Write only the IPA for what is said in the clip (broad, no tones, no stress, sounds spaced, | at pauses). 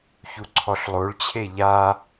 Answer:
ç u ǀʰ ɔ ɬ lˠ o ɭ t͡ɕʰ e ʎ a